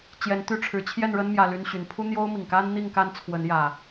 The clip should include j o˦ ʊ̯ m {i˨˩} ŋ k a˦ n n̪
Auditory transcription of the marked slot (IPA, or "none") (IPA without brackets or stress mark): i˨˩